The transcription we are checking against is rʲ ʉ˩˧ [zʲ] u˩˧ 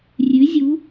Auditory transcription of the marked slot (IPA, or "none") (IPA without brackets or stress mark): zʲ